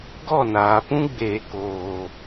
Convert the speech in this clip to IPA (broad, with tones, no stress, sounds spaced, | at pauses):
ɡ ɔ˦˨ n aː˨ p ũ˦ ɡ͡b eː˨ k oː˨